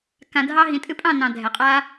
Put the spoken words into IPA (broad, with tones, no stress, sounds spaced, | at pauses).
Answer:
k ã˧ dʱ ɑ˦ ɦ ĩ˨ tʼ ɨ˧ pʼ ɑ̃˦˨ n ɑ̃˨ dʱ ɛ˨ qʼ aː˦